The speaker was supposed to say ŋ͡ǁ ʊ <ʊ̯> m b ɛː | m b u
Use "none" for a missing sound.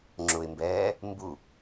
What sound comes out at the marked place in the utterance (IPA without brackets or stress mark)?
ɪ̯